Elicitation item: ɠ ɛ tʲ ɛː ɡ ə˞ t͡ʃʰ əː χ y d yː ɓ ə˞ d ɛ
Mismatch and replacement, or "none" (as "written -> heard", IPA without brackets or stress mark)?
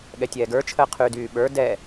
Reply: χ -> qʰ